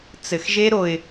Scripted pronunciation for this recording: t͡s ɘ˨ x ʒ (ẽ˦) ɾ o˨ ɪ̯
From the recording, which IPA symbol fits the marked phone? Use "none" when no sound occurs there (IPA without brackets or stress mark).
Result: e˦